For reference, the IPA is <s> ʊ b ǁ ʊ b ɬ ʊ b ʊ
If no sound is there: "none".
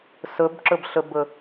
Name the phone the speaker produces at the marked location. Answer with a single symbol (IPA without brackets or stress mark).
s